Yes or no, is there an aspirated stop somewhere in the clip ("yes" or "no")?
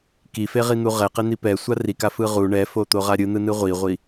no